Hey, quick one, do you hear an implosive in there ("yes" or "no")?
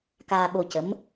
yes